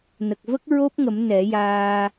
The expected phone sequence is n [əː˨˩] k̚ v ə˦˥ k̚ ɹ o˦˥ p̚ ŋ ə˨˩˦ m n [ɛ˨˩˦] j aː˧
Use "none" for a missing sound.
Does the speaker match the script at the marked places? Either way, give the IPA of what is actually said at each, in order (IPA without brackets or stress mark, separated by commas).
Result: ə˨˩, ɛ˨˩˦